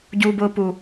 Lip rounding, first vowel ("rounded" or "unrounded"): rounded